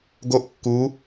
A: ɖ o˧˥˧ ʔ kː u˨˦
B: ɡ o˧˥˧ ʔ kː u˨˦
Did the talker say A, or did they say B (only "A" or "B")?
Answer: B